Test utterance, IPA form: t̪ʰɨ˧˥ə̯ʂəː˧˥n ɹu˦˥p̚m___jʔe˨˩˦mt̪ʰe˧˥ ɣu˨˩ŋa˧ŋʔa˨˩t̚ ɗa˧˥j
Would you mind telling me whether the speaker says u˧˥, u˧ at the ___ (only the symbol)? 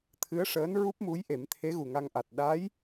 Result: u˧˥